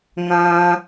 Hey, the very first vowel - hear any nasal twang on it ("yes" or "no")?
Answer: yes